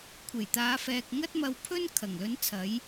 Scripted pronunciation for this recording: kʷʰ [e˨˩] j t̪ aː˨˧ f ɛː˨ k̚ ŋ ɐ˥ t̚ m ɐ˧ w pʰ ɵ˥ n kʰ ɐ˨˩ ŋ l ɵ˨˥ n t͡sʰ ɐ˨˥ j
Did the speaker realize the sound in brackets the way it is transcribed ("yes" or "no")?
yes